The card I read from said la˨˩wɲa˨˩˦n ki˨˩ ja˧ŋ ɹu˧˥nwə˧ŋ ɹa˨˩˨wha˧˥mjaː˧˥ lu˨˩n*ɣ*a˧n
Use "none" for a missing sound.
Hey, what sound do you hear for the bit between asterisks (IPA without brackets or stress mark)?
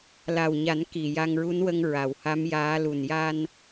j